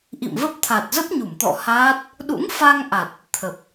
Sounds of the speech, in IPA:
ʔ ḭ˧˨ m v ə˦˥ p̚ t̪ʰ a˨˩ t̚ z ə˦˥ p̚ ɲ u˧˩ m t̪ ɔ̰˧˨ h aː˦˥ t̚ | ɗ ṵ˧˥ ŋ f a˧ ŋ ʔ a˨˩ t̚ | t̪ʰ ə˨˩ p̚

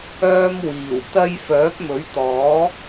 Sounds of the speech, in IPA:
œː˥ m w iː˨˩ w t̪ ɐ˧ j f œː˨˥ p̚ m ɵ˨˥ ɥ t̪ ɔː˨˥

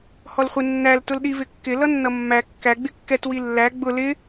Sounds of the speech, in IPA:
h ɔ l χʷ ɪ nː æ l t ʊ l ɗ i v ɪ kː ɪ l ʌ nː ʌ mː æ kː æ ɡ͡b ɪ kː ɛ t w i lː æ ɡ͡b ʊ l ɪ

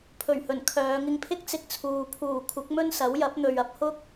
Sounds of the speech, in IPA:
pʰ ɵ˨˩ ɥ h ɵ˨˩ n kʰ œː˨˧ ŋ ɪ˧ ŋ pʰ ɪ˥ k̚ t͡s ɪ˧ k̚ t͡sʰ uː˨ pʰ uː˨˩ kʷʰ ɪ˨˥ k̚ m ɵ˥ n s ɐ˨˥ w j ɐ˨˥ p̚ n̪ ɵ˨ ɥ ɐ˧ p̚ h ʊ˥ k̚

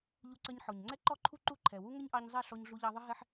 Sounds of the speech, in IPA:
ʎ u˧ ǀ ə˧ ɲ ħ ɔ˨ ɲ ŋ͡ǀ ɛ˦ ǃ ɔ˦ ǃʰ u˦ ǃ u˦˨ ǃʰ ɛ˨ w u˦ ŋ ə˦ ɲ ʔ ɑ˧ ɲ zˤ ɛ˦˨ ɬ ɔ˧ ɲ ɮ u˧ ʎ ɑ˧ ðˤ ə˦ ɦ ɛ˦ ħ

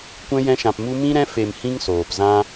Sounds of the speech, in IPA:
kʷ ɛ̃˧ j ɛ̃˧ ʃ ã˨ p m u˧ m ĩ˧ ɾ ɛ̃˧ f e˨ m h ĩ˦ ŋ s oː˨ p z ã˦

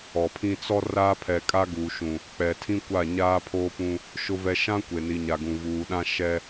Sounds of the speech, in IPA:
ɔ˨ pʰ ĩ˦ t͡s ɔ˦ r aː˦ pʰ ɛ˨ kʼ a˦ ɡ uː˨ ʃ ũ˨ | k͡p ɛ˨ tʰ ĩ˦ kʷ a˦˨ ɲ aː˦ pʰ oː˦ p ũ˦ | ʃ ʊ˦ v ɛ˦ ʃ ã˦ kʷ e˨ n i˨ ɲ a˨ ɡ ũ˨ v uː˨ ɗ ã˦ ʃ ɛ˦

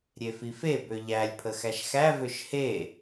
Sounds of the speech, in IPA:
ɾʲ e f i f e b ø ʎ æ lʲ pʰ ə x æ ʃ x æ v ø ʃ h e

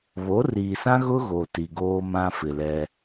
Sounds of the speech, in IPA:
β o˨˦ r iː˨ s ã˦ ɣ ʊ˦ ɣ o˨ t i˨ ɡ oː˦ m ã˦ f ɪ˨ l ɛ˦

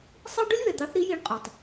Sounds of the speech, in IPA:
sˤ i˥ ɖ ʊ˥ lʲ β ɛ˩ d̪ ɑ˨˦ θ ɾ i˨˦ j i˨˦ ɳ qʼ ɔ˩ tˤ

